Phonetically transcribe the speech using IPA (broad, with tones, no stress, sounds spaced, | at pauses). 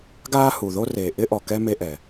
ɡ aː˥ h u˨ ð o˥ r eː˨ ʔ ɪ˥ ʔ ɔ˨ k ɛ˥ m e˦ ʔ ɛ˩